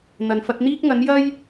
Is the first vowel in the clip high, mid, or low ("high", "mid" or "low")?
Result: low